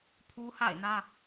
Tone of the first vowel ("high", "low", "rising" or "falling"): high